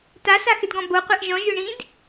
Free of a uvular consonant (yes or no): no